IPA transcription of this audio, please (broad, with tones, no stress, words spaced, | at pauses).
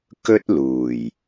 kɵ˥t̚luː˨˩j